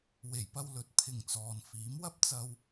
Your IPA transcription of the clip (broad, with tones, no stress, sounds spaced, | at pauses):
w e˨˩ j p ɐ˧ w l ɵ˨ t̚ pʰ ɪ˨˩ ŋ t͡s ɔː˨ n f iː˨˥ m w ɐ˥ p̚ t͡s ɐ˧ w